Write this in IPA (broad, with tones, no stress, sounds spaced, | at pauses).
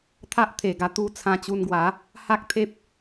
t̪ʰ a˦ ʔ t̪ʰ e˨˩ ɡ a˧ t̪ u˥˧ t͡sʰ ã˧ t͡ɕ u˧ n ɡ w a˨˦ | h a˦ k̚ t̪ʰ e˦ p̚